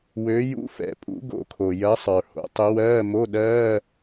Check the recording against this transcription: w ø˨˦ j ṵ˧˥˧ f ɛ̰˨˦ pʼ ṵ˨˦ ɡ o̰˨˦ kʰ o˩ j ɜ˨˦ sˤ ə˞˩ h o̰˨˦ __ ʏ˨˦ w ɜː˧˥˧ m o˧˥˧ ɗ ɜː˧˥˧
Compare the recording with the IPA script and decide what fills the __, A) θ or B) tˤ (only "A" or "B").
B